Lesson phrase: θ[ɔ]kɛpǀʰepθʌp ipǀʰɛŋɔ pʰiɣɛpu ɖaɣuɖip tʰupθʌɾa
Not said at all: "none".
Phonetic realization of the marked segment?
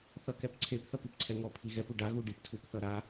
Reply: ʌ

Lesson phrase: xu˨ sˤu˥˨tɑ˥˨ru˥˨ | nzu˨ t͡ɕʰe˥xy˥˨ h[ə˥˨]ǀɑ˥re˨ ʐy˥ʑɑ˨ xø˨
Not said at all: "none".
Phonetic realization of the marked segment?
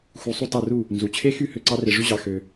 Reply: ø˥˨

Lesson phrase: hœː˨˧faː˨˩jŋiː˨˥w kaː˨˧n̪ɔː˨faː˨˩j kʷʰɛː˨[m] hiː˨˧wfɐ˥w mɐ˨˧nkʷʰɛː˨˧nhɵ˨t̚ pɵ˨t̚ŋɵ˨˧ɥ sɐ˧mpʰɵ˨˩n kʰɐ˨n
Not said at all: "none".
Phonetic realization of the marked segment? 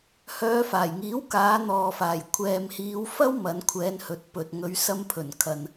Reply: m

